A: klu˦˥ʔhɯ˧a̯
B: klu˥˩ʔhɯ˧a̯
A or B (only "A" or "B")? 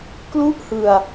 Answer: B